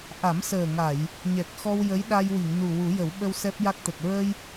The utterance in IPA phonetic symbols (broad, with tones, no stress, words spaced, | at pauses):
ʔa˨˩˦msəː˨˩ŋa˨˩˨j | ɲɛ˨˩k̚xɔ˧w jə˧˥jɗa˧jwi˨˩˨ŋ nu˨˩ wu˨˩˦jə˨˩˦wɓə˧w sɛ˦˥p̚ja˦˥k̚t̪ə˨˩k̚ ɹə˧j